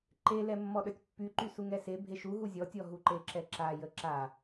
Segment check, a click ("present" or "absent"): present